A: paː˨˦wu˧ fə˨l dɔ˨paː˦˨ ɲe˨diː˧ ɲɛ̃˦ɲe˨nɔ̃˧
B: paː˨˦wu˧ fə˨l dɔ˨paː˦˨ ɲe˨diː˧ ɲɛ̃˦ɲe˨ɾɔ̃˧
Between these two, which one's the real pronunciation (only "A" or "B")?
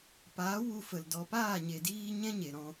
B